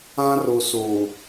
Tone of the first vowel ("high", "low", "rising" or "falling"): high